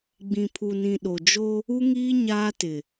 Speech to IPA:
ɡ͡b ĩ˨ pʰ u˨ n ĩ˨ ɗ o˨ d͡ʒ o˦ | u˦ ŋ iː˦ ɲ aː˦ t ɪ˨

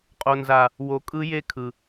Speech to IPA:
qʼ o˨ n z a˨ | w o˨ kʼ ɯ˦ j e˦ kʰ ɯ˨

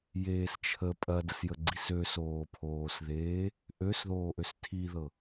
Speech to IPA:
j eː s t͡ʃʰ ə pʼ ɐ d ə s j ə ɡ͡ǀ i s ø s oː pʰ oː s ð eː | ʔ ø s ð oː ʔ ø s tʰ i ð ɤ

